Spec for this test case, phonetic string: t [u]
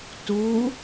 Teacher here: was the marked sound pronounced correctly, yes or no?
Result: yes